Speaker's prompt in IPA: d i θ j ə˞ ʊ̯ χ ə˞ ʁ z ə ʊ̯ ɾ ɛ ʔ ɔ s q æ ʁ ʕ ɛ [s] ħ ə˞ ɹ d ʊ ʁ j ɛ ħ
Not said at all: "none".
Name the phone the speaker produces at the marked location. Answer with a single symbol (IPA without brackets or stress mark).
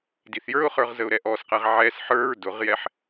s